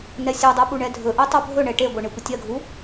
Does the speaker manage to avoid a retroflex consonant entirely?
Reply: no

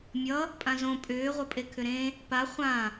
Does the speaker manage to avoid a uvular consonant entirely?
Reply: no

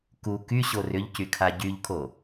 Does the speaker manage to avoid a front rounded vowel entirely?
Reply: no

